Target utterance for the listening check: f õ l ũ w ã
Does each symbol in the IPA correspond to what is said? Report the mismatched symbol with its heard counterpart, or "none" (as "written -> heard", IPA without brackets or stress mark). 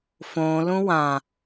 none